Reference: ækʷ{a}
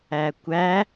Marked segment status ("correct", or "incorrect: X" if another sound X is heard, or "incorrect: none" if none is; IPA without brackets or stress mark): incorrect: æ